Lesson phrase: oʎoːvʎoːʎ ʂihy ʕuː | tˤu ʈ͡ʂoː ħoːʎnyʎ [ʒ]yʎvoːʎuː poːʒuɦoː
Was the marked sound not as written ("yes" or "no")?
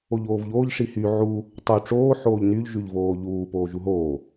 no